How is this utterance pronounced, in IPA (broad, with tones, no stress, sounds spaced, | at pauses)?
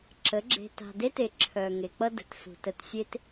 ǁ ə˨˦ ɡ͡ǁ e̤˨ t a̤˨ d e˦ t e˨ ǁʰ œ˨ ŋ e˨ k͡p ʌ˦ d ə̤˨ t s ṳ˨ t ə˨ t sʲ e˦ t